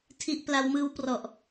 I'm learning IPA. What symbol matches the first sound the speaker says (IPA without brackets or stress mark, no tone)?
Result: tʰ